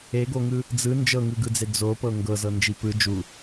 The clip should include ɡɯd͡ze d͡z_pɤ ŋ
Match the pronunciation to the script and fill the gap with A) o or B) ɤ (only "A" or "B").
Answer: A